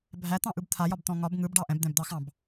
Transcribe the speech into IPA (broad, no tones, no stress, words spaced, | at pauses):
bʱæt̪ɑ̃ʔɯb t̪ʰajɒbt̪ɔ̃ ŋɒb ŋɯbɖɑ ʔɛ̃bd̪ɛ̃bd̪ɑxɑ̃b